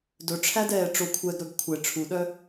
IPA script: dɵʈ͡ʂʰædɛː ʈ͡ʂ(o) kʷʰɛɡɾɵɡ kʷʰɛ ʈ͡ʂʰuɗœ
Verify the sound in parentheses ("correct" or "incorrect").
correct